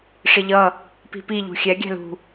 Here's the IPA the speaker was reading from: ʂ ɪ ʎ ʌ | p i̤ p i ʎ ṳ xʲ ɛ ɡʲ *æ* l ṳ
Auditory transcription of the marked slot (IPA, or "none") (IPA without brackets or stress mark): æ̤